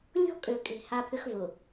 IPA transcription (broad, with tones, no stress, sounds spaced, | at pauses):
lʲ ɔ̤˦ kʼ ø˨ kʼ e̤˨ h a˦ pʰ ʏ˦ x v ʊ˨